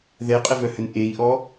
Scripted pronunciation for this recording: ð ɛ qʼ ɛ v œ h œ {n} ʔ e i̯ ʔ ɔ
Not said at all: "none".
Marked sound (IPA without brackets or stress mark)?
n